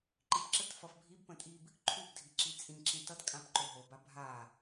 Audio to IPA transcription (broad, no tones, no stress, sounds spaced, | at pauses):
ǃ i p ǁ ə t f ʌ f bʱ i b p ə̃ tʼ i b | ǃʰ u b dʱ i ǁ i t͡sʼ ĩ ǁ ĩ t ʌ t kʼ ã p ǃ o ɦ o b a bʱ a